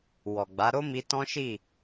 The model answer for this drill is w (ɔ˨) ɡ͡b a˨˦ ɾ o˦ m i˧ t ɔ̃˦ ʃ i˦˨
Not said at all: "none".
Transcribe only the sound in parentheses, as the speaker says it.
ɔ˨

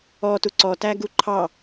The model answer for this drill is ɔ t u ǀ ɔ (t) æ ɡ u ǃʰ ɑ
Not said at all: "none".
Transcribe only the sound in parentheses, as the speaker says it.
t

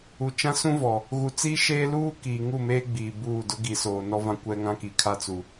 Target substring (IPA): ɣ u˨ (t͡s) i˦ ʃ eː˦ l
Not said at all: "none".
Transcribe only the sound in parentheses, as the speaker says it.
t͡s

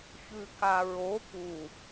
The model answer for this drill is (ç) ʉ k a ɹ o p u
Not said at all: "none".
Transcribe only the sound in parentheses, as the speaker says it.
ç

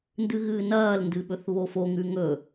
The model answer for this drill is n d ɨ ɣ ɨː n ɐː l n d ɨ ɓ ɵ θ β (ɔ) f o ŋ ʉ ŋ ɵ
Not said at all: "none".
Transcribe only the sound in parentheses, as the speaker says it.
o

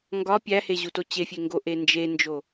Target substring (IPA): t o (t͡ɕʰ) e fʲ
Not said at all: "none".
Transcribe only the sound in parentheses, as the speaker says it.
t͡ɕ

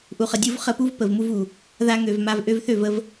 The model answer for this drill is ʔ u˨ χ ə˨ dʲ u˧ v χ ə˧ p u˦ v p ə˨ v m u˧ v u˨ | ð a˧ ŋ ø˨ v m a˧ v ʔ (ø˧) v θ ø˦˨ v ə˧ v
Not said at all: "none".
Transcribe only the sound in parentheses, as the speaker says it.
ø˧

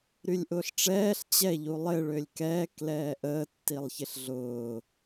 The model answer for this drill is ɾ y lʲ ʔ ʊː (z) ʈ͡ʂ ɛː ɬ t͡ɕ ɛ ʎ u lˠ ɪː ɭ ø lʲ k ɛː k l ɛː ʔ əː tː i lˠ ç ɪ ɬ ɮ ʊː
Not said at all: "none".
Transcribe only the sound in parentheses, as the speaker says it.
ɬ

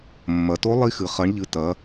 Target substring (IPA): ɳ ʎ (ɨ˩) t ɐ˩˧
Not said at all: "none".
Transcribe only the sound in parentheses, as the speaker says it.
ɨ˩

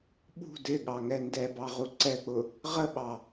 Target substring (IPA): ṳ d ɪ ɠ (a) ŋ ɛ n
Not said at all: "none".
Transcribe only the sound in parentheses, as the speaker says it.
ɑ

